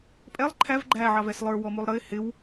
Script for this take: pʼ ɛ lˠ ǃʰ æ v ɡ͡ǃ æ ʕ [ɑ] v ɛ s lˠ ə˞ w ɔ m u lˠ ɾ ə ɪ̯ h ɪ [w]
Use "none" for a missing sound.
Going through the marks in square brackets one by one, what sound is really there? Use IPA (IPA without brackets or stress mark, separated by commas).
ɑ, w